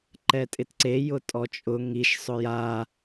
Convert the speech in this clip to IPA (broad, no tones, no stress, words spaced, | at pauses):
ǃɛtʼɪtǀe jʊtʼɔt͡ʃʼʊ ŋiʃ sˤʊja